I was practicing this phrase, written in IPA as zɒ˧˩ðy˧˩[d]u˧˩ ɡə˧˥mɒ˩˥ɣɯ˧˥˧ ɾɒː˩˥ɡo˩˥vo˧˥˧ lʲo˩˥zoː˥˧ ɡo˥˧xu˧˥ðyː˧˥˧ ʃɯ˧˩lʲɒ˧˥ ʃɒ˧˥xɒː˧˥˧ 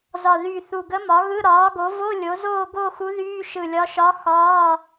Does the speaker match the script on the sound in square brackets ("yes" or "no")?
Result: no